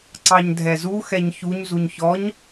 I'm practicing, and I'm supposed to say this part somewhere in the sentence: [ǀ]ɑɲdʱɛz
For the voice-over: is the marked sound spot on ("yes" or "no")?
yes